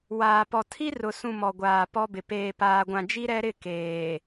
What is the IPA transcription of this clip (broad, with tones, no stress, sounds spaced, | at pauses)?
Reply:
w aː˨ p ɔ˨ tʰ i˦ r ʊ˨ s ũ˨ m ɔ˨ ɡʷ aː˨ p ɔ˦ b ɪ˨ p eː˨ p aː˨ ɡʷ ã˨ d͡ʒ i˦ ɾ ɛ˦ ɾ ɪ˦˨ k eː˨